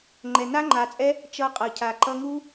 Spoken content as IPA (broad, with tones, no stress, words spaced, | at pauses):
ŋ͡ǃɛ˨na˦ŋ͡ǃa˨ t͡sʼɛ˦ | t͡ʃʌ˧qʼʌ˨cʰa˨ ǃʌ˧ŋu˦